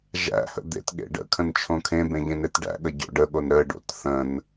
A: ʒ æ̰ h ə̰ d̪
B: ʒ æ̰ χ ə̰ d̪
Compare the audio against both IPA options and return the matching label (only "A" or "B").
A